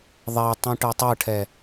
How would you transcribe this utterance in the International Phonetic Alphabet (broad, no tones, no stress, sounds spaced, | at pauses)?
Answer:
ðˤ ɛ tˤ ũ ʈ ɤ tˤ ɤ ʈʰ ɛ